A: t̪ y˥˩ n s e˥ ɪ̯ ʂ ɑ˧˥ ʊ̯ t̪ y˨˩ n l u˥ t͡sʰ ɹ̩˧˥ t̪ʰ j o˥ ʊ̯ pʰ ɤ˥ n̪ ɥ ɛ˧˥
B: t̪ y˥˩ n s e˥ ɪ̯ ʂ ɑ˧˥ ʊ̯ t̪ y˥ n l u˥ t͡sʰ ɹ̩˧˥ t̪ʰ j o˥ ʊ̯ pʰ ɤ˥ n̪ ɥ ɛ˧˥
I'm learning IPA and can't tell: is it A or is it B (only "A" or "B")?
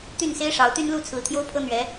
B